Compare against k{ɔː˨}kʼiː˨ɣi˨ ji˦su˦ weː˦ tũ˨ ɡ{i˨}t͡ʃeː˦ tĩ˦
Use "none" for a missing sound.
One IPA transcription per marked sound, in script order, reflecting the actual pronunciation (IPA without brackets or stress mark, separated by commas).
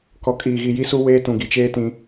ɔ˨, i˨